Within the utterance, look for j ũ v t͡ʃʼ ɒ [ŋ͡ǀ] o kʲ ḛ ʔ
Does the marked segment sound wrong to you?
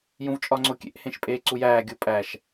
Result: no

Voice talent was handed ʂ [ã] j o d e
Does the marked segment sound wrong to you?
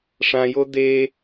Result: no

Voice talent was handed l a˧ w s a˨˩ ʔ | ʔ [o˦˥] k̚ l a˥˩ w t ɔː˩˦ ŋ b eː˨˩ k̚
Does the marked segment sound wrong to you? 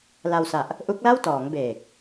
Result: yes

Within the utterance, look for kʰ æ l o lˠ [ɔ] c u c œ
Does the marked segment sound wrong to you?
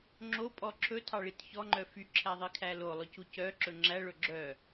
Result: yes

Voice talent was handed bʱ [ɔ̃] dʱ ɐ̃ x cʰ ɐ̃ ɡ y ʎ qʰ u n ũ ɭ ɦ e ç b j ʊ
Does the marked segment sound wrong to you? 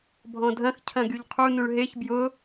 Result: no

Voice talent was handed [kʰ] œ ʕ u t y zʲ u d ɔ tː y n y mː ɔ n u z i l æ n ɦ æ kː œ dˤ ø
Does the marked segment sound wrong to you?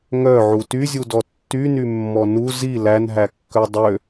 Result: yes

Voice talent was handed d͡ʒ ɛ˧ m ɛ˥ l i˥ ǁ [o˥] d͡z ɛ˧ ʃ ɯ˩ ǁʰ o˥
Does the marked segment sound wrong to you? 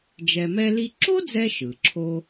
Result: no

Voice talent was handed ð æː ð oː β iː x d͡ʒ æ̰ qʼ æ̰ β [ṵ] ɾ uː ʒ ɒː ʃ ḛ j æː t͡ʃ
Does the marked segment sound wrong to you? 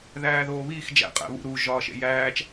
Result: no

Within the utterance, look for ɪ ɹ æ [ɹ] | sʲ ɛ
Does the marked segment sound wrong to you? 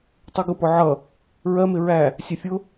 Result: yes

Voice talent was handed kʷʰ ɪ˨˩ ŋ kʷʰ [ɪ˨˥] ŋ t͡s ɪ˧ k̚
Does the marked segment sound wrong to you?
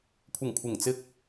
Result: yes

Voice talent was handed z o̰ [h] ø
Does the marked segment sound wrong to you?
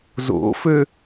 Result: yes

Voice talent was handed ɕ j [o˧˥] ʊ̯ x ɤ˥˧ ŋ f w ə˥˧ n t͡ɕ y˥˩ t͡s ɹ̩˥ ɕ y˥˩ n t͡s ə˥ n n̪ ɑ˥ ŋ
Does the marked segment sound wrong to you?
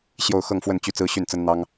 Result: yes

